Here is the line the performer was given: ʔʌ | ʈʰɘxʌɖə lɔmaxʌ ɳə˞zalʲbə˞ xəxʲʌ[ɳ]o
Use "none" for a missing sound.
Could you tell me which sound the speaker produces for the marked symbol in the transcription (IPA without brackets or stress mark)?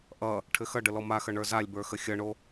ɳ